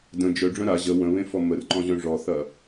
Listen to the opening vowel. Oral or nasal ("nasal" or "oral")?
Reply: nasal